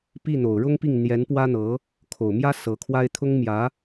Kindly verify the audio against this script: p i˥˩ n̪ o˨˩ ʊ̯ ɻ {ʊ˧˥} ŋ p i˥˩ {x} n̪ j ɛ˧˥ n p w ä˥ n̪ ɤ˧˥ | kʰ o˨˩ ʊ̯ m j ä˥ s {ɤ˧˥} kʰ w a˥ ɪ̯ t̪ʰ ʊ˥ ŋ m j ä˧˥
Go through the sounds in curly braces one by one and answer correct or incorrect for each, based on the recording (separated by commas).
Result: incorrect, incorrect, correct